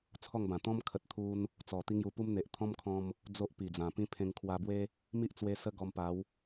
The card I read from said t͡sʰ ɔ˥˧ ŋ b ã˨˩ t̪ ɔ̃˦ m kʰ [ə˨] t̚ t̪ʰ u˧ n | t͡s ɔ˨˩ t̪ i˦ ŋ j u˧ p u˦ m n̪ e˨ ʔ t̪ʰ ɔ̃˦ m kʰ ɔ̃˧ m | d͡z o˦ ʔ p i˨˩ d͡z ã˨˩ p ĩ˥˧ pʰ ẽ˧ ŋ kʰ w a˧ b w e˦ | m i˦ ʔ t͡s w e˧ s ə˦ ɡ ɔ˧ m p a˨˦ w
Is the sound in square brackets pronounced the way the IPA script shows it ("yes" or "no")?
yes